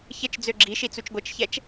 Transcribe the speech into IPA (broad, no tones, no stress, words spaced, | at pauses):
çət͡ʃ d͡zøɡ͡ǁiʃi t͡sut͡ʃɡʷət͡ʃçɛt͡ʃ